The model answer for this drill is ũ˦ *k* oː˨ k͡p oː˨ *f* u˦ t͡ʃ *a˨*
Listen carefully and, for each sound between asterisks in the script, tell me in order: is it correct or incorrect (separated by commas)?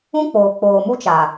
incorrect, incorrect, correct